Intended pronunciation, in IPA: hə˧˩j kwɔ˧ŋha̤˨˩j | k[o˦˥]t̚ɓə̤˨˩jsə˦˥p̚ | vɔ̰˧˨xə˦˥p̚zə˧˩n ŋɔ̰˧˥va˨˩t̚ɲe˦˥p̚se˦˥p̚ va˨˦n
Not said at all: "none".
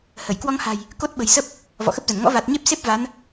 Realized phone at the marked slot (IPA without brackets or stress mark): o˦˥